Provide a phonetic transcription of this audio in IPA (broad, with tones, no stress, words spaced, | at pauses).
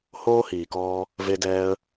hoː˦hiː˨kɔː˧ | ve˧dɛː˧ə̯